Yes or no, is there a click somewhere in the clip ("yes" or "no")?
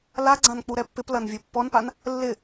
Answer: yes